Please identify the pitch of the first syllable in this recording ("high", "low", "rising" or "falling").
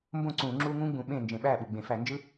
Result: falling